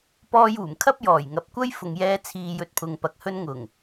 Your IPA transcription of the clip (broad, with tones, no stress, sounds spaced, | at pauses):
p ɔː˧ j uː˨˩ m kʰ ɐ˥ p̚ j ɔː˨˩ j ŋ ɐ˨˥ p̚ kʷ ɐ˥ j f ʊ˨ ŋ j ɛː˧ t͡sʰ iː˨ j ɵ˧ t̚ pʰ ʊ˨ ŋ p ɐ˨ k̚ h ɵ˧ n ŋ ʊ˨˩ ŋ